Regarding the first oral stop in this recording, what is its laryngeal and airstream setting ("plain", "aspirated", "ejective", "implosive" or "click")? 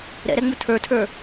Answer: aspirated